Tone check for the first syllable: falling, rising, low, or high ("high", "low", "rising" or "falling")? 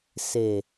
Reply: low